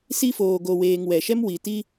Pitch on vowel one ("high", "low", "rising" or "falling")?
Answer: high